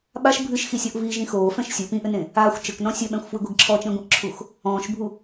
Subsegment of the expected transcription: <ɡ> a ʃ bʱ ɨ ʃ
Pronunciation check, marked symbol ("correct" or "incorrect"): incorrect